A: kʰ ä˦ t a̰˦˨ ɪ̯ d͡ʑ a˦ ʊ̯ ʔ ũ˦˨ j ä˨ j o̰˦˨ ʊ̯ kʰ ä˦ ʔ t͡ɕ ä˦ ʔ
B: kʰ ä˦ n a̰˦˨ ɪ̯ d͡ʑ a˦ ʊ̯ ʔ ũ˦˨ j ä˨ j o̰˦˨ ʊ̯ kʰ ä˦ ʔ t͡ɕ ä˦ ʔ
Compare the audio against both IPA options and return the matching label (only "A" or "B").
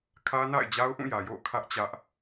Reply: B